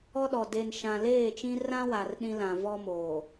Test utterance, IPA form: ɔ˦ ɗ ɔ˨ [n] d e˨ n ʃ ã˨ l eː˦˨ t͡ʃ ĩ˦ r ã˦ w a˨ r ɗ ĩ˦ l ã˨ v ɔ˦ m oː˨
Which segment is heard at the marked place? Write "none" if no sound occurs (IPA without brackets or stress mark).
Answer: none